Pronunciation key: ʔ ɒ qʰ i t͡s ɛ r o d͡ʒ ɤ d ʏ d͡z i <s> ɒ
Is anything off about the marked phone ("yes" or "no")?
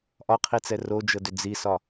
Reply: no